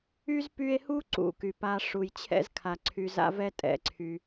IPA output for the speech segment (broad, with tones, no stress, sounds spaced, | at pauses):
y˥ z p y˦ e̯ h u˥ ǀ ṵ˦ k y˩ p a˦ ʂ u˨ j t͡ɕʰ ɛ̰˥ z kʰ a˩ ǀʰ y˨ z a̰˥ v ɛ˥ tʼ ɛ̰˨ ǀʰ y˩